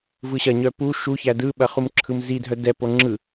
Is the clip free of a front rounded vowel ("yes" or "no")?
no